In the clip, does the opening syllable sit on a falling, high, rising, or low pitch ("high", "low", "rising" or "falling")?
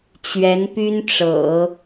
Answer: rising